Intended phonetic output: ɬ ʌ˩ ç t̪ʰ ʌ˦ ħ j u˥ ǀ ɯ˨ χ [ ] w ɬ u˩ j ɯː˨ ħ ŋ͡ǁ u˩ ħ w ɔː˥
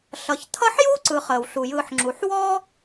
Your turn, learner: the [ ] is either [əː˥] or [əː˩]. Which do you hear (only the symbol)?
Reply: əː˩